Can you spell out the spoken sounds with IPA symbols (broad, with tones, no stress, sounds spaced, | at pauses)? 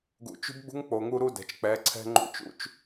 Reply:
ɡ ṵ˨ t͡ʃ ṳ˦ b ɡ͡b ṳ˦ ŋ k͡p o˨ ŋ u˦ ɾ u˦ d ɛ̤˨ t͡ʃ k͡p ɛ˨˦ ǀʰ ɛ̤˦ ŋ͡ǃ ṵ˦ t͡ʃ ṵ˦ t͡ʃ